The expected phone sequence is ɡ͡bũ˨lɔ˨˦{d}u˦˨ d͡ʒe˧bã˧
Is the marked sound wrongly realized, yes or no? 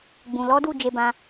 no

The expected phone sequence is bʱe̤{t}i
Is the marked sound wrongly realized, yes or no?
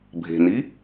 yes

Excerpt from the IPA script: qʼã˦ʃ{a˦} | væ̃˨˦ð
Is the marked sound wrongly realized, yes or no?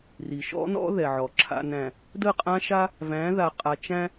no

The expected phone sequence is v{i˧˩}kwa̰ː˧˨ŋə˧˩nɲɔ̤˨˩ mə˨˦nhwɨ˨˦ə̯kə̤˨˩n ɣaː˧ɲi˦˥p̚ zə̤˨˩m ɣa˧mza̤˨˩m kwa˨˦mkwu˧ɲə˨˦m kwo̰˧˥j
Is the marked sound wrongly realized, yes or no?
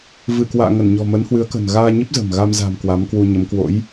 yes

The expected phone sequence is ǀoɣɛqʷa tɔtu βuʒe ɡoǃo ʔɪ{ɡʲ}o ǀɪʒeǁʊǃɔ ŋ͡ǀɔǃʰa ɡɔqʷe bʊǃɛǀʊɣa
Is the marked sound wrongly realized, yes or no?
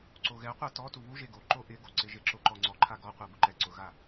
yes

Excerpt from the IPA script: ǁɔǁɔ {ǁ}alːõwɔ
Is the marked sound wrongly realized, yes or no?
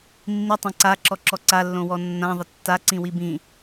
yes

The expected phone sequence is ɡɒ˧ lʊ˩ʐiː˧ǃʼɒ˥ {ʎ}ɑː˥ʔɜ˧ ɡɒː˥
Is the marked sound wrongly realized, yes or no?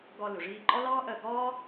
yes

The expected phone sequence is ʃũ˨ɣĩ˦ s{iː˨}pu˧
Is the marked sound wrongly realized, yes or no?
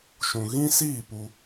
yes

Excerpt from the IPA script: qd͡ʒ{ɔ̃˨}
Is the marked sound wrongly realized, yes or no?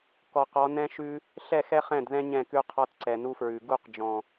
no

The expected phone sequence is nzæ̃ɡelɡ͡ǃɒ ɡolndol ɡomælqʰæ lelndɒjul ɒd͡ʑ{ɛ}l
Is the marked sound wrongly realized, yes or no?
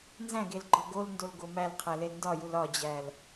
yes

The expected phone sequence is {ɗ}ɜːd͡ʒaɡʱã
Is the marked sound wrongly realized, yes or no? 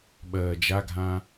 yes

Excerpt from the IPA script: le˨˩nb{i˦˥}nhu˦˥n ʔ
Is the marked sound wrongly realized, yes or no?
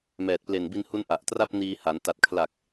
yes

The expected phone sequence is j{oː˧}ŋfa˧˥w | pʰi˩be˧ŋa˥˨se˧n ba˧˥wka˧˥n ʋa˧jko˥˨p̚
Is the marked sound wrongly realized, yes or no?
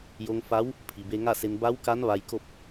yes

